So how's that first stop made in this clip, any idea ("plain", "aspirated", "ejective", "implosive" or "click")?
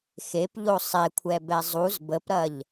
plain